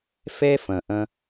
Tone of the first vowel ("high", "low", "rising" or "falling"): high